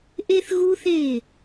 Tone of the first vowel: high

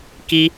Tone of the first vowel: high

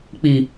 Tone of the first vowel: low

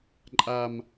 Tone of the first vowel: low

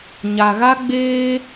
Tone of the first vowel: low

